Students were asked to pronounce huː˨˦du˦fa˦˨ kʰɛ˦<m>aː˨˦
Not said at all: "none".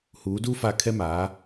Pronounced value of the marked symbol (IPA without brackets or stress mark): m